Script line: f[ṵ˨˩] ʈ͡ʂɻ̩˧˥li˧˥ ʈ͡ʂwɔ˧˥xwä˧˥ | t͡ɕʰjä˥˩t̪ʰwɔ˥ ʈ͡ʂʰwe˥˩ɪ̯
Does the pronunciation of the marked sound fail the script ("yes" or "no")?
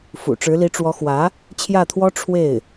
no